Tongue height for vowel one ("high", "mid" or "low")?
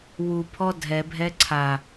high